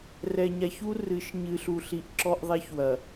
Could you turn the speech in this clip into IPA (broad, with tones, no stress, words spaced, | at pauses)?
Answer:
rɛ˨ɲa˨çu˦ rɨ˨˦ʃ ɲɨː˨ɬu˨ɬi˨ʔ ǁɔ˦ʔðˤɛ˦çwɐ˨